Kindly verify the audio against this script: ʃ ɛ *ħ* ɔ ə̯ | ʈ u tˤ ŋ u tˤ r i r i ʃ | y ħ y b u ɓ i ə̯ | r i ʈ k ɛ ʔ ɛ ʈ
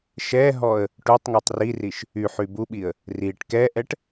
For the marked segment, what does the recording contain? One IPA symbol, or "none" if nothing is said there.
ɦ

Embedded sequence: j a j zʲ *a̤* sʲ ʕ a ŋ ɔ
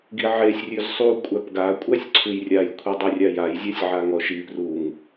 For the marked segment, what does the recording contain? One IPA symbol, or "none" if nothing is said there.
a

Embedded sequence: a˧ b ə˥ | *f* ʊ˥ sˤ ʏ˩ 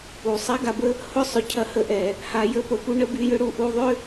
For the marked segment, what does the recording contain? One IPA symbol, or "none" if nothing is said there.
h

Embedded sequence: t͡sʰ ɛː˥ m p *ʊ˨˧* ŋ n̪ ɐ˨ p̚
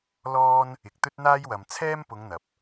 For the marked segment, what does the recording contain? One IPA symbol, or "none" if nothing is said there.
ʊ˨˧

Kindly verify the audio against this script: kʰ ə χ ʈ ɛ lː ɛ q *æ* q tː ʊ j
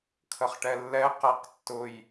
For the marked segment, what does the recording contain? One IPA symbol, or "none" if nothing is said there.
æ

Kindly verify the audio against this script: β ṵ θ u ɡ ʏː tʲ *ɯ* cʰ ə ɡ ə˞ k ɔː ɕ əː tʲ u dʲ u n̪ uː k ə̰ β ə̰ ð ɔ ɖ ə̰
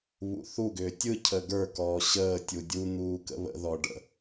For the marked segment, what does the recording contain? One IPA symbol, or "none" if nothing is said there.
ɯ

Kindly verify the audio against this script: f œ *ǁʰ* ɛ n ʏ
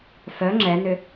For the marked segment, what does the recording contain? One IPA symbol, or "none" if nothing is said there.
ŋ͡ǁ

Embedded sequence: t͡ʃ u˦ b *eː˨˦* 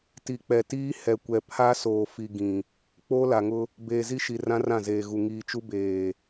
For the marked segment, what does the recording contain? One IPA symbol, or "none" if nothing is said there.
eː˨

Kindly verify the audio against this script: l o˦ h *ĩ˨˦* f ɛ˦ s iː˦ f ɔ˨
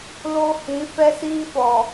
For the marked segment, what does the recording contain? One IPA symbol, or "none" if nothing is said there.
ĩ˨˦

